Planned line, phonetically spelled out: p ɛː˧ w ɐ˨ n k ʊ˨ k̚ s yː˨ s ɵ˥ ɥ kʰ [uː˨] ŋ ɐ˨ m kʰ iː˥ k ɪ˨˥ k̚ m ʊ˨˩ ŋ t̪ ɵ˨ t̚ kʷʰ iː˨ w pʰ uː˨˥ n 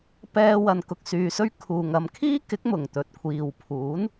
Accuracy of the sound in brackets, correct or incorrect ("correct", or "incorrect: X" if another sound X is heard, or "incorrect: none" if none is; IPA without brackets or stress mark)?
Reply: correct